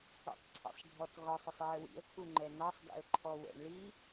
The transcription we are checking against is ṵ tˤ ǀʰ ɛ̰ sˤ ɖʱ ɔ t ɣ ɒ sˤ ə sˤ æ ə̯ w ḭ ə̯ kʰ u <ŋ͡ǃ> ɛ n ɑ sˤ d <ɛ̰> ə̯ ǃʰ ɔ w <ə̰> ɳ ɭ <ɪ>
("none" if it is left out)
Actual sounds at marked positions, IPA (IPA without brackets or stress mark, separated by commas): ŋ͡ǃ, ɛ̰, ə̰, i